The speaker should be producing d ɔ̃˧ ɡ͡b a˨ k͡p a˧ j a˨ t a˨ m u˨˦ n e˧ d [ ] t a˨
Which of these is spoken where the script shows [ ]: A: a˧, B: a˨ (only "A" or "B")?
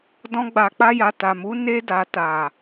B